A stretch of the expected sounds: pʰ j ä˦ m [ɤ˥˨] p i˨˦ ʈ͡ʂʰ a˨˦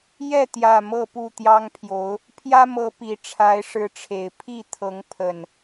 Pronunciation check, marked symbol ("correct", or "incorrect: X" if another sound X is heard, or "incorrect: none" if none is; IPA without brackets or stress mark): incorrect: ɤ˨˦